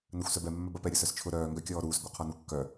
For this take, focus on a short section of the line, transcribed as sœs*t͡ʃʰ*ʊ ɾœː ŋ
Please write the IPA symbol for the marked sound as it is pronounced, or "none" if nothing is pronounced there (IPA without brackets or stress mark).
t͡ʃʰ